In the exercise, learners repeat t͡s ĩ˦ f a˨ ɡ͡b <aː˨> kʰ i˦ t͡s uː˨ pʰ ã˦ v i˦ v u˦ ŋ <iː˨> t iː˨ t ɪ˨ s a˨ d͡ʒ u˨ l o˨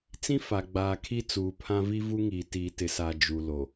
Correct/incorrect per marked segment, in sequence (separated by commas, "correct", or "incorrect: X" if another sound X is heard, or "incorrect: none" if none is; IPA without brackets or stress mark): correct, correct